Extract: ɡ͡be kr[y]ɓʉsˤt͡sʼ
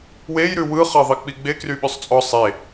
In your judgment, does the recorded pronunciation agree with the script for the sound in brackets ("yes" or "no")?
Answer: yes